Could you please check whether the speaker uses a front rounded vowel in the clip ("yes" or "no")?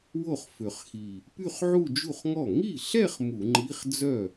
yes